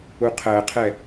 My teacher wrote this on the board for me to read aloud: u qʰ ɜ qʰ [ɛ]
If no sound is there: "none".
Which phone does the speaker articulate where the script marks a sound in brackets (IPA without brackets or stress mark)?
ɛ